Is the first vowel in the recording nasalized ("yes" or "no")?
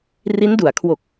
no